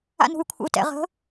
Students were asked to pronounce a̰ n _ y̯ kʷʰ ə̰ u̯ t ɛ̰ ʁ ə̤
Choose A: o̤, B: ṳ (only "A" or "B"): B